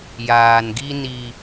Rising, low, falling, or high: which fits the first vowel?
low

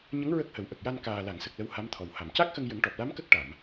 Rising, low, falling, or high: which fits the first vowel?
rising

